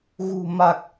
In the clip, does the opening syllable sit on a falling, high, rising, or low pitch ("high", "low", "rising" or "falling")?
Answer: low